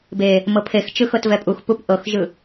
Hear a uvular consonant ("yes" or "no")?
no